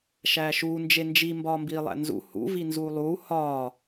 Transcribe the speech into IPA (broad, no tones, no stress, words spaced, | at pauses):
ʃæːʃuː nd͡ʒend͡ʒi mbɒːmbiːlˠæ̰nzṵ hṵ vinzuːlˠuː hɒː